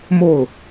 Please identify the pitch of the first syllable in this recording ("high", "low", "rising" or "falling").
falling